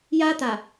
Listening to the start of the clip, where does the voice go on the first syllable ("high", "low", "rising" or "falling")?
high